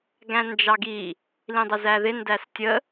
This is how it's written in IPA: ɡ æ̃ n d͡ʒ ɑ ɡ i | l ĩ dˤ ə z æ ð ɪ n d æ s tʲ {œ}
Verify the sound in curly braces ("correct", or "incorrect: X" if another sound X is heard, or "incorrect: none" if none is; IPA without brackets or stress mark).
incorrect: ə